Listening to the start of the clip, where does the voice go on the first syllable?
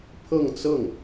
falling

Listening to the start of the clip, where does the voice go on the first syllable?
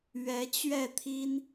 rising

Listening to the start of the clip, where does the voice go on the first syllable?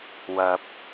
low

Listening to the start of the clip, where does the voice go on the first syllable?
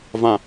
low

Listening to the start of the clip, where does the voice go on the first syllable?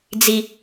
low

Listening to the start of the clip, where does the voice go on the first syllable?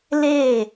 falling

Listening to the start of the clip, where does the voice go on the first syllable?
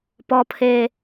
high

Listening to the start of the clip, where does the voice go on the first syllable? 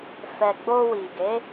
low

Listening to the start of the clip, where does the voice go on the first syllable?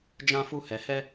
high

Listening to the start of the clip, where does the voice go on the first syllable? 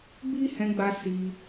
high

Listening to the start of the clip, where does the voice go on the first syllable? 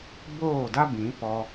falling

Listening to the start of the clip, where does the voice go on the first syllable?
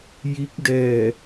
rising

